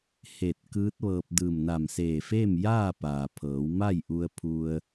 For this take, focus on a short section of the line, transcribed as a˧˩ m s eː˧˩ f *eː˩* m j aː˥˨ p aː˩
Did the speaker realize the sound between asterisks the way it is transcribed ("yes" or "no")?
no